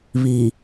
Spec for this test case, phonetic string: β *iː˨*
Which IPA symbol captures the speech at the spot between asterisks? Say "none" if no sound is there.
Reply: iː˨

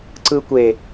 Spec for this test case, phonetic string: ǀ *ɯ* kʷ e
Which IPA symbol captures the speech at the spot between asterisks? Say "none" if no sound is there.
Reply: ɯ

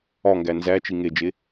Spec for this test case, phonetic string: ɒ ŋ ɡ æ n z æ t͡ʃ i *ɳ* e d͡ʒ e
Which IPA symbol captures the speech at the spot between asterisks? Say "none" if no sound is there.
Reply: ŋ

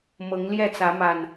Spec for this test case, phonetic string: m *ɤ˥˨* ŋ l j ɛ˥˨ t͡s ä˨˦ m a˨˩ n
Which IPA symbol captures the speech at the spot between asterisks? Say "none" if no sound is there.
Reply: ɤ˨˦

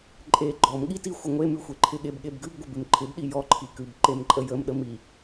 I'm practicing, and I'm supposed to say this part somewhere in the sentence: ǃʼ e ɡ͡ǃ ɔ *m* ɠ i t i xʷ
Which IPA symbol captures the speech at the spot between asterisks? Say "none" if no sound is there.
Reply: m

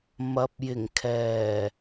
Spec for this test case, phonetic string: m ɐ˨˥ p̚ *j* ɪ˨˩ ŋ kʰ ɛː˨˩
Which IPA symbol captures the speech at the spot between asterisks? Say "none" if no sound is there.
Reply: j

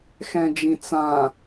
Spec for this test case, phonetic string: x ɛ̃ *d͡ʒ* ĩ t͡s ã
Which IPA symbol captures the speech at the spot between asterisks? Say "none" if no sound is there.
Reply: d͡ʒ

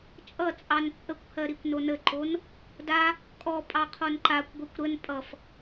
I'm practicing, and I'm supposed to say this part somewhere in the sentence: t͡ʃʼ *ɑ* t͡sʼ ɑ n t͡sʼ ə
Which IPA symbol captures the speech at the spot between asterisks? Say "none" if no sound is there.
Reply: ʌ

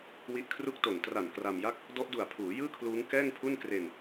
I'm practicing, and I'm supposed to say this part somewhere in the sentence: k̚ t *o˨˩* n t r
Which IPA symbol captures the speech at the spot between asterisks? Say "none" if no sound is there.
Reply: o˨˩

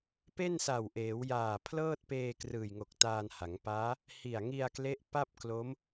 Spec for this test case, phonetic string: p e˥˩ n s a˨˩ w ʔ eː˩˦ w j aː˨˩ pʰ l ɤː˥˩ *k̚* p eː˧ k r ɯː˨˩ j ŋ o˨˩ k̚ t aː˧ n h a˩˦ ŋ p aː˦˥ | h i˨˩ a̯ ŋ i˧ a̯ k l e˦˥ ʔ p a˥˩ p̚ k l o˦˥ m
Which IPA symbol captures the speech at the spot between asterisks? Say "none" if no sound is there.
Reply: t̚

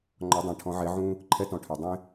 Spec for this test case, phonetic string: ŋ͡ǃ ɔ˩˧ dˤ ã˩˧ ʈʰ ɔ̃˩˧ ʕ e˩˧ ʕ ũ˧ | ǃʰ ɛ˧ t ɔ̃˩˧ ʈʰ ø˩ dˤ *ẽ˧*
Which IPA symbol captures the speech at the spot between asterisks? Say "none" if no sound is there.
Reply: ẽ˧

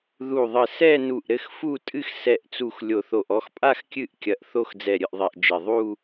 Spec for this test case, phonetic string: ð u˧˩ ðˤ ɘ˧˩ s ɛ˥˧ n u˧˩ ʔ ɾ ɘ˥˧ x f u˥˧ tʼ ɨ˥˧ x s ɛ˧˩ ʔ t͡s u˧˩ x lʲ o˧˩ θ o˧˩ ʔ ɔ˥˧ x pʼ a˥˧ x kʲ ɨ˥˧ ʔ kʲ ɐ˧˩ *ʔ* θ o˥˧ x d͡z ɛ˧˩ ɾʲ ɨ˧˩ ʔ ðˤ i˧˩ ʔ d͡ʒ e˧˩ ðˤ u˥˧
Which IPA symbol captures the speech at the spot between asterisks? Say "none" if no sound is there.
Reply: ʔ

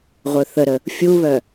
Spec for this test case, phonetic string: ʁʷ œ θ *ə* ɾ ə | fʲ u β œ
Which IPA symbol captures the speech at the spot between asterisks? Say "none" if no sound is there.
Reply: ə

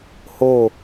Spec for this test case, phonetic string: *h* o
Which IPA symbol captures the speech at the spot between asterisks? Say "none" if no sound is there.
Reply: h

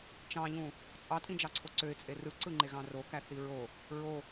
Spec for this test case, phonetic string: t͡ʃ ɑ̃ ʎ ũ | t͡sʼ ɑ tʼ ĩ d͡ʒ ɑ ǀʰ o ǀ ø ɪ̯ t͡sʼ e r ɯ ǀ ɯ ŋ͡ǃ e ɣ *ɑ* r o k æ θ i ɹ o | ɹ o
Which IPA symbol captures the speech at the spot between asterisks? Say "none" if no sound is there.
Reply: ɑ̃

